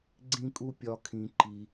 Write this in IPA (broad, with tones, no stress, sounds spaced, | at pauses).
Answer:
ɡ͡ǀ ĩ˥ kʼ u˥ pʲ ɒ˥ kʰ ĩ˦ ǃ i˥